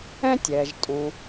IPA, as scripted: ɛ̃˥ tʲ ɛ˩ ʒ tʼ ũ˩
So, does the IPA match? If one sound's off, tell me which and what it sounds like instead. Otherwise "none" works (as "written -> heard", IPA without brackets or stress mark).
none